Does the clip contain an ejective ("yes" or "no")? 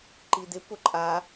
yes